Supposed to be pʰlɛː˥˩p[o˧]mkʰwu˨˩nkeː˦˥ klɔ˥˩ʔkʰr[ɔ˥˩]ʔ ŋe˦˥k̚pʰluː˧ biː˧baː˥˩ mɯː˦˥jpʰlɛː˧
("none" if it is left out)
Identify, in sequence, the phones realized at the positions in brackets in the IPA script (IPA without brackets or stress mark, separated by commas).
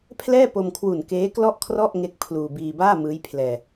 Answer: o˧, ɔ˥˩